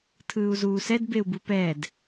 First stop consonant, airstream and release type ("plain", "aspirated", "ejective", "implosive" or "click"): aspirated